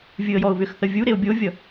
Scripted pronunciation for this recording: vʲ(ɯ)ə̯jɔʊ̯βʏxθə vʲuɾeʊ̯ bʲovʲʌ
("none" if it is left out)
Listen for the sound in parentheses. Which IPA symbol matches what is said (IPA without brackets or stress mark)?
ɯ